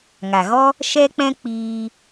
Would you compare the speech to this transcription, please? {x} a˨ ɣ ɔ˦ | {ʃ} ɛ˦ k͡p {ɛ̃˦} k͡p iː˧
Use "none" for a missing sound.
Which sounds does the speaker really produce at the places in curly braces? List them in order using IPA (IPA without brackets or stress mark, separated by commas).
ŋ, ʃ, ɛ̃˦